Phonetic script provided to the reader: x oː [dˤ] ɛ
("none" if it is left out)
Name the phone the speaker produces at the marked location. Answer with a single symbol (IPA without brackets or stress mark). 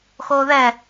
ð